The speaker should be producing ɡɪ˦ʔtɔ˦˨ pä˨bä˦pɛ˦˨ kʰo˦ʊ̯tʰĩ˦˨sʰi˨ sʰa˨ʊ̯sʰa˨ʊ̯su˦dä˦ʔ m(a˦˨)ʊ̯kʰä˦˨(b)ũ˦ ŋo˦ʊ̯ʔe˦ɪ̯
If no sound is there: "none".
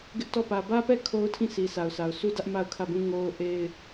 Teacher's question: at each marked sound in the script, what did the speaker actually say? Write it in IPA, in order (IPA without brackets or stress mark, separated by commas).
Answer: a˦˨, b